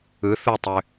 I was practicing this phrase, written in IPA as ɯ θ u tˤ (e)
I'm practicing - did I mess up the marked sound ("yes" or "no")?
yes